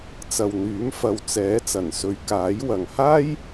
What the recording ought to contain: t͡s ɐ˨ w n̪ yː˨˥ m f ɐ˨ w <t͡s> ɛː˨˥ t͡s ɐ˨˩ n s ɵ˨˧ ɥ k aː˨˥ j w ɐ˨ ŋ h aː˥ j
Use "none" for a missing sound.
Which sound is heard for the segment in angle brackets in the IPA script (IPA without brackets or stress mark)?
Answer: t͡s